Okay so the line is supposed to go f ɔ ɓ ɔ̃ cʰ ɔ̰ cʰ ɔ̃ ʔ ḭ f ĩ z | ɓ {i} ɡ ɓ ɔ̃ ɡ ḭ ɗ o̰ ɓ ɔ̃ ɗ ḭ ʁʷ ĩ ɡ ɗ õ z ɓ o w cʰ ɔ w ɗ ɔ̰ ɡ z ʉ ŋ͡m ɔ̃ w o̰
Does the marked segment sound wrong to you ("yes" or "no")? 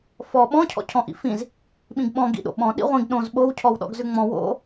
yes